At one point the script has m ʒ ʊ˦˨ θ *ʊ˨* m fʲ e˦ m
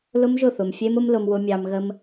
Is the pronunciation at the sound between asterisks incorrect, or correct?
correct